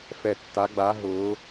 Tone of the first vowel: low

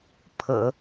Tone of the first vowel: low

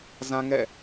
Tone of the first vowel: high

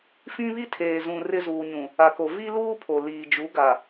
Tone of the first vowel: high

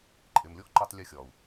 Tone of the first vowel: low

